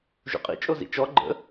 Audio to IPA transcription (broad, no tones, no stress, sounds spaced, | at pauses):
ʒ ṵ qʼ ḭ t͡ʃʼ o z ḭ t͡ʃ ɔ ɡ͡ǃ ə̰